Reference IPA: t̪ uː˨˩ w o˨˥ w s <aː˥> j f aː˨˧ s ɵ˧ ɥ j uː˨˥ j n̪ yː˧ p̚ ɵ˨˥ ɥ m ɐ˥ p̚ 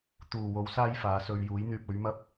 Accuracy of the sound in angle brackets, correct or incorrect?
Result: correct